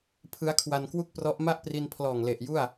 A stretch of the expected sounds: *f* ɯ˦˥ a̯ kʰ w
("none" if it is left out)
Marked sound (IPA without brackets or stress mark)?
pʰ